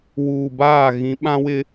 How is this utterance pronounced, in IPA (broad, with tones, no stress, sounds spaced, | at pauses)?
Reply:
w uː˨ b aː˦˨ ɣ ĩ˨˦ ɓ ã˦ w ɪ˦